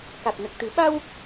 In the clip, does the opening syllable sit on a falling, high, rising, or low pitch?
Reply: low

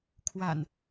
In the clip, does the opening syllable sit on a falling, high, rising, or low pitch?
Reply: low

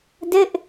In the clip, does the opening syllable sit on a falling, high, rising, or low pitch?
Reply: falling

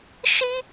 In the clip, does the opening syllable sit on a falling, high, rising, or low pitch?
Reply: high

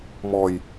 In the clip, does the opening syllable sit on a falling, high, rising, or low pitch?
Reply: low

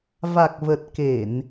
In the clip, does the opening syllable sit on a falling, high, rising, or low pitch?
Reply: low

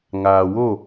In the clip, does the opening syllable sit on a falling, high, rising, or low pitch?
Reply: low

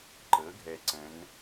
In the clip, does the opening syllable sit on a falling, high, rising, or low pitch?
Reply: rising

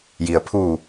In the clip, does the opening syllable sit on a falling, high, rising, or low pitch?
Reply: low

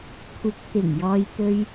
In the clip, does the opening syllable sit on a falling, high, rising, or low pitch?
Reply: rising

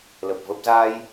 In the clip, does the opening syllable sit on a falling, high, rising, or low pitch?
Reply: low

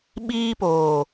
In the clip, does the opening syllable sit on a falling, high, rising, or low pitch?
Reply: high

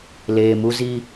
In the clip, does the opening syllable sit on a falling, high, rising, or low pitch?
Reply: low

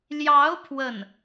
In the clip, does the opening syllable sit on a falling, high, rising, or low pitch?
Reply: rising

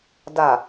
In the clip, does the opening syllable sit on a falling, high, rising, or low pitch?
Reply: low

